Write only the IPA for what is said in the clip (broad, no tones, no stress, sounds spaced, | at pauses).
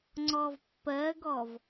ŋ͡ǀ ɔ v pː ɜ ɡ ɔ v